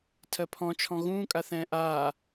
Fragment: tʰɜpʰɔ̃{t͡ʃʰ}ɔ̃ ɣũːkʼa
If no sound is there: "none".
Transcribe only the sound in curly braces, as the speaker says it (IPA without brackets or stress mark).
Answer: t͡ʃʰ